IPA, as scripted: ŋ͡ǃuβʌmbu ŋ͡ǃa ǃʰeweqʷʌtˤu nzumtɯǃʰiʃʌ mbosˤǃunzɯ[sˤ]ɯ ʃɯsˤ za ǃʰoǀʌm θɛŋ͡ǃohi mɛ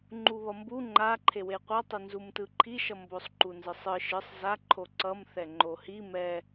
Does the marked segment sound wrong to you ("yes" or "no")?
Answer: no